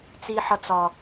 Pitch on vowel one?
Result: high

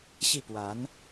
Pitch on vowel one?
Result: falling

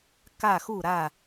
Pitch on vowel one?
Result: falling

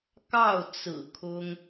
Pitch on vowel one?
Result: falling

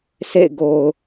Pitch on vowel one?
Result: falling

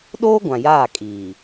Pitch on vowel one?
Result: high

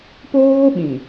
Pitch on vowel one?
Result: high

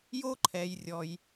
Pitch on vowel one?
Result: high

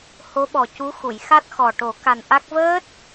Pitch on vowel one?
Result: rising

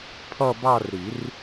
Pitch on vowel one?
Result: falling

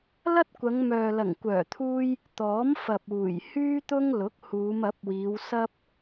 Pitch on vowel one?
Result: high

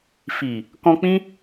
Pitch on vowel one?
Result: low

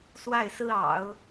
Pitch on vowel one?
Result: falling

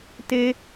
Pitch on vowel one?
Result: high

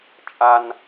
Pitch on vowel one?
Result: high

